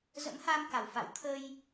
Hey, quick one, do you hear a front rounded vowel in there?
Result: no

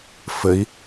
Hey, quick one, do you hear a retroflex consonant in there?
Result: no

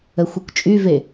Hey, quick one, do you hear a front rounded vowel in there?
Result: yes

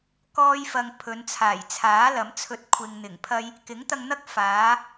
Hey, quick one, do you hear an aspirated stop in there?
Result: yes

